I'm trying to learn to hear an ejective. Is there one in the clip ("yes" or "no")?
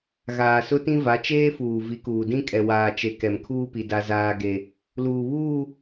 yes